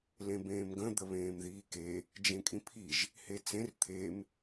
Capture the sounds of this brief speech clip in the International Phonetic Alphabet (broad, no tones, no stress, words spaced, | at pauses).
lẽbẽːmɡə̃ d̪əβẽːmðiːke | d͡ʒẽkʼĩpʰiʒ | het͡sẽr t̪ʰem